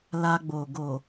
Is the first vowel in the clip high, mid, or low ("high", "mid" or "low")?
low